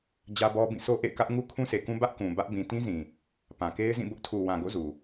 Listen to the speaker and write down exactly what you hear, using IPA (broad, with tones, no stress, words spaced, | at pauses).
d͡ʑä˦bɔ˦ bĩ˦˨so˦ ʔḛ˦˨ɪ̯kä˦ʔ ŋu˦kʰũ˦se˨kũ˦ bä˦ʔkũ˨ bä˦ʔbĩ˨ tĩ˦zĩ˨ | pã˨ke˦ɪ̯zĩ˦˨ bʊ˦ʔtʰu˨wã˨ɡo̰˦˨ zu˨